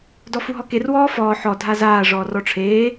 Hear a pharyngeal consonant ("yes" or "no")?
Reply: yes